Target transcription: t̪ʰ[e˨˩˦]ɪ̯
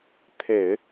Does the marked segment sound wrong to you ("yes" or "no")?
no